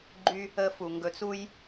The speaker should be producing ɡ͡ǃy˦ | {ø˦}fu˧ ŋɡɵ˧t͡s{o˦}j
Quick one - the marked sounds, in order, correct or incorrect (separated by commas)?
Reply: incorrect, incorrect